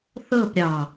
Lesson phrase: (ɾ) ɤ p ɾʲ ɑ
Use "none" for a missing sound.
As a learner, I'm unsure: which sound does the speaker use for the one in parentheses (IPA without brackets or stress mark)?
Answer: θ